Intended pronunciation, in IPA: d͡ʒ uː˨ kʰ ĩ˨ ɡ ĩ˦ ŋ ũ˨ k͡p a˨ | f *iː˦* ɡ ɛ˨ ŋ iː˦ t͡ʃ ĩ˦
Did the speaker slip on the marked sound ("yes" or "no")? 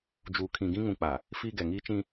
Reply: no